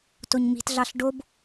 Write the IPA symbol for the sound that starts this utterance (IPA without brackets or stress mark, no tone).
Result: t